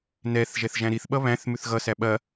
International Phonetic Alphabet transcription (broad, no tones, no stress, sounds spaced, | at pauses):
n ɛ θ ʒ ɛ θ ʒ æ̃ ɾ i θ ɓ ʌ β æ̃ θ m ʉ θ ɣ ʌ s æ ɓ ɐ